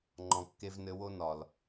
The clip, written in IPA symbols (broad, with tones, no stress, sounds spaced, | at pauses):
ŋ͡ǃ ɔ̃˨ kː e˧ v n ɘ˧ w o˧ n ɒ˨ l